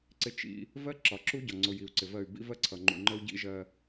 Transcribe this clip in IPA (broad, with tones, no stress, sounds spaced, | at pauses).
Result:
ǀ ɪ˦ t͡ʃ ḭ˦ | v ɜ˦ ǁ ɒ˨ ǁ u˦ ɟ ɒ˨ ŋ͡ǀ ʊ˨ j i˨ u̯ ǀ ɪ˨ v ɜ˦˨ y̯ b ḭ˦ v ɜ˦ ǀʰ ʌ˨ ŋ͡ǃ ṵ˨ ŋ͡ǃ ə˦ u̯ ɟ ḭ˦ ʒ ɜ˦